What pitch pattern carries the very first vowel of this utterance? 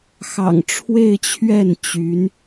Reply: low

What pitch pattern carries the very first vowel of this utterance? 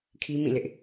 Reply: high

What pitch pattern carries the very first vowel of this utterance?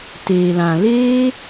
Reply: low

